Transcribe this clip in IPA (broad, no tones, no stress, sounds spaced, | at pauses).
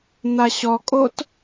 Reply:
n̪ a ɕ ɔ kʼ o t